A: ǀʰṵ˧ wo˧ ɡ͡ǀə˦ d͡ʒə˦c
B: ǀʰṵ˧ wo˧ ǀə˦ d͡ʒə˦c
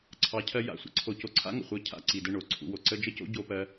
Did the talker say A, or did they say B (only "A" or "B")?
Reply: B